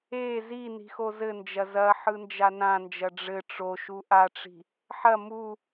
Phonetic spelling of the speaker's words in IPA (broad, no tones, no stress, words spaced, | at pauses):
e zi ni̤xozɘnd͡ʒɐ zɐ ħɯnd͡ʒanãnd͡ʒɐ ɖ͡ʐɘ ʈ͡ʂoʃu ʔaʈ͡ʂi̤ | ħɐ mu